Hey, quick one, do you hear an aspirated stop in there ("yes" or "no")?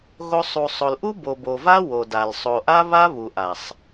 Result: no